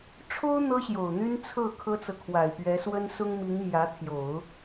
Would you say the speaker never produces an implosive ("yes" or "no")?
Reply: yes